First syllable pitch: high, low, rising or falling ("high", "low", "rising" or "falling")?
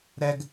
high